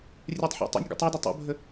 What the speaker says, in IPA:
rʲ ɛ tˤ ħ o̰ tˤ ə̰ nʲ ɡ o̰ tˤ ɵ d o tˤ o̰ bʱ ə

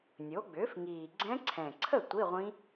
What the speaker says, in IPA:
nʲ o˩˥ ɡ͡b ʏː˩˥ f ŋ iː˨˩ ɡ͡ǀ ɛ̃˦˥ ǀʰ ɛ̃˨˩ ǀʰ ə˥˩ tʷ i˧˥˧ ʁʷ ĩ˦˥

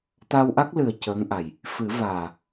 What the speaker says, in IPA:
t̪ a˧ w ʔ a˦˥ k̚ l ɨ˨˩ ə̯ c əː˧˥ ŋ ʔ a˨˩ j | f ɨ˨˩˦ v aː˨˩

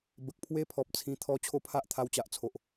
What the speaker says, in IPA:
b ə˨ k̚ pʰ w e˦ pʰ ɔ˨ p̚ t͡sʰ ĩ˧ t̪ʰ ɔ˦ t͡ɕʰ o˦ pʰ a˦ ʔ t̪ʰ a˧ w t͡ɕ a˨ ʔ t͡sʰ o˨ ʔ

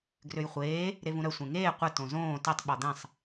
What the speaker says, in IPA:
ɡ r ø j χʷ eː | ɾ e v ũ ɾ œ sʷ ẽ ŋ eː qʷ ə t õ z õː t e tˤ ɓ ɔ d̪ ɛ̃ sˤ

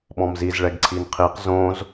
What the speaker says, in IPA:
ɓ ɔ̃ m z i z ɭ ɛ ɡ ǀʰ i n qʰ i q z õ z

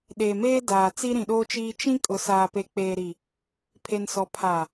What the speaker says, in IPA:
ɗ eː˨ m eː˦ d aː˨ t͡s i˦ ɾ ĩ˨ ɗ oː˦ t͡ʃ iː˦ t͡ʃ ĩ˦ kʼ ʊ˨ s aː˨ p e˨ k͡p eː˨ ɾ i˨ | pʰ e˨ n s ɔ˨ pʰ a˨

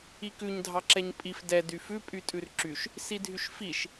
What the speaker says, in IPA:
i k ʉ ɲ dʱ ɑ ǁ ɛ ɲ pʼ i f d ɛ d y f ʉ pʼ y tʼ ʉ r ǁ y ʃ | s i dʱ y ʃ f i ʃ

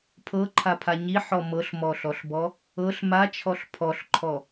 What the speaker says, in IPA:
pʰ ɤ ǃʰ a pʰ a ɲ i ħ ɔ m ɤ ɬ m ɔ ɬ ɔ ɬ b ɔ | ɤ ɬ m a t͡ʃʰ ɔ ɬ pʰ ɔ ɬ ǃʰ ɔ

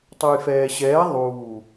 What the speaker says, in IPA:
tˤ ʊ j f ɛː ɕ ɛː ðˤ uː

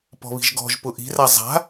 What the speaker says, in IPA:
p ɔ̤ β i̤ ʒ ɡ ɔ̤ ʒ p ʊ ʔ i̤ r a zˤ a̤

